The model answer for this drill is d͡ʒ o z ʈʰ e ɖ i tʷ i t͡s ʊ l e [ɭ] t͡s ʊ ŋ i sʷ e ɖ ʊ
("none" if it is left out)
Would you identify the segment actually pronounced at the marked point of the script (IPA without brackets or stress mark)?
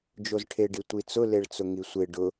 ɭ